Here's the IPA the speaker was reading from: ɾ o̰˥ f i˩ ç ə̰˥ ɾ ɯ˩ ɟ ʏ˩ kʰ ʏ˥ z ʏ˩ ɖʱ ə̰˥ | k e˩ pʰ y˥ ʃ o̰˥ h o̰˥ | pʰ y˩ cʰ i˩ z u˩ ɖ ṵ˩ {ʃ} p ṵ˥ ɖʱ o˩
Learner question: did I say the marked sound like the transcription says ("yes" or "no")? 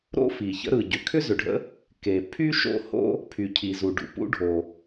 no